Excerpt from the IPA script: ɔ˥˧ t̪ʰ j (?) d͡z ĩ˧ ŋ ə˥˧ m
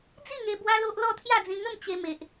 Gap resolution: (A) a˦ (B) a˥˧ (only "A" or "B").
B